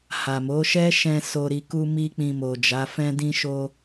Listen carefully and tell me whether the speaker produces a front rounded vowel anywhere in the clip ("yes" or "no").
no